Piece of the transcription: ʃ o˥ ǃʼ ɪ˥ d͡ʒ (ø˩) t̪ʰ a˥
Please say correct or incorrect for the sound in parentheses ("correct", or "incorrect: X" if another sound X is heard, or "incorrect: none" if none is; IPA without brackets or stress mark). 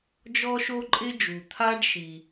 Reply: incorrect: u˩